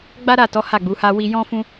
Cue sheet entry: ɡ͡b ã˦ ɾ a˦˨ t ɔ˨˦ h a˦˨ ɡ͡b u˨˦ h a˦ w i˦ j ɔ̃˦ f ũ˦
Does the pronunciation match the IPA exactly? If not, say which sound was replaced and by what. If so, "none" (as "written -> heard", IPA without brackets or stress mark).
ã˦ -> a˦